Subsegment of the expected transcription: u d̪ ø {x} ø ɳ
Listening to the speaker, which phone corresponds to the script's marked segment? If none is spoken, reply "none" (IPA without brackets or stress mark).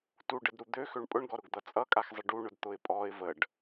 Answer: x